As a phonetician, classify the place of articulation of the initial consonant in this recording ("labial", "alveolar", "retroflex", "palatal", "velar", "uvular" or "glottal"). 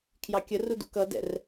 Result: velar